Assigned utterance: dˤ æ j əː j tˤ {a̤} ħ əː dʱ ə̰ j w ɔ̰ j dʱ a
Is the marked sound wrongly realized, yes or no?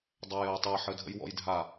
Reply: yes